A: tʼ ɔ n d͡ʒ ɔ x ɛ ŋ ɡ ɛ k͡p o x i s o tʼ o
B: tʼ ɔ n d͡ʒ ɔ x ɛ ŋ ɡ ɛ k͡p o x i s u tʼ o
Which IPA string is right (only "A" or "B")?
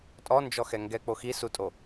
B